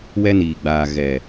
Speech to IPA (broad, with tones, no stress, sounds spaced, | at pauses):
w ɛ˦ n iː˨ ɡ͡b aː˨ ɣ ɛ˨